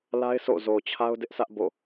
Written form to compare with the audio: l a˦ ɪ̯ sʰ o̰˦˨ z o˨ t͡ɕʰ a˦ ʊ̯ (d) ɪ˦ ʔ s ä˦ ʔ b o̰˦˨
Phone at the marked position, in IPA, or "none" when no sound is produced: d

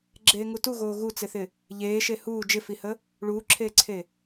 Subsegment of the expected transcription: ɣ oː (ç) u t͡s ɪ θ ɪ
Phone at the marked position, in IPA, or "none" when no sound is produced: ɣ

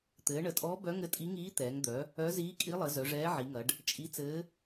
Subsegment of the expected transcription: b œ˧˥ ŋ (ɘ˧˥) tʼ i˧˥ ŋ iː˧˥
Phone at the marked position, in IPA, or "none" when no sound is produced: ɘ˧˥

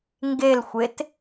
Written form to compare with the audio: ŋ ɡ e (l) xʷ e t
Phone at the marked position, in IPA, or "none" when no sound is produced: l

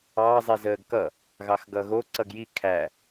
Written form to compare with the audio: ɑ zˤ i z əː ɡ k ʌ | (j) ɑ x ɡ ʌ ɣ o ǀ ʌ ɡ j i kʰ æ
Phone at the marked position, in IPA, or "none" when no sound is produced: ɣ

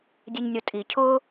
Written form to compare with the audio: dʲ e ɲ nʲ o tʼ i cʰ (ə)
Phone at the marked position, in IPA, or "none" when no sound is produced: ʊ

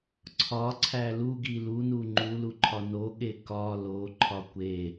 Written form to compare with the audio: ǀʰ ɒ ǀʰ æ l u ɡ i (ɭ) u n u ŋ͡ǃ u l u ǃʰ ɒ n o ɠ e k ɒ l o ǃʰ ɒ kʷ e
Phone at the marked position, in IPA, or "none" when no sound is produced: l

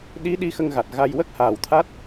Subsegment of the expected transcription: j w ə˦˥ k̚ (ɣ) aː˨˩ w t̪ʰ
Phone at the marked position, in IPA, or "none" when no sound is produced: h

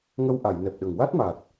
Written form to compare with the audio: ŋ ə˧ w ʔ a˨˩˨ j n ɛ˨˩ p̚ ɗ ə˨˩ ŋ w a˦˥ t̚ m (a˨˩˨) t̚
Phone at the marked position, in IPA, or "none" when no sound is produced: a˨˩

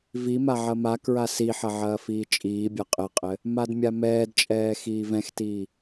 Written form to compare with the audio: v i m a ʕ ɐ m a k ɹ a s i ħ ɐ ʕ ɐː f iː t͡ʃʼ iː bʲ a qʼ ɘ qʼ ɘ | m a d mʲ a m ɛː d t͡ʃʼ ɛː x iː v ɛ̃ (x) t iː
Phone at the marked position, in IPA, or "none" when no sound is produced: x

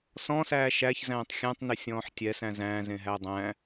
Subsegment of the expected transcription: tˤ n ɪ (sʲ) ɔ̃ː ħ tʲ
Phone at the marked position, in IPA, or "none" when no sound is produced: sʲ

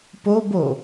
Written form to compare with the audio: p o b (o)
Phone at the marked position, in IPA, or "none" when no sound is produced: o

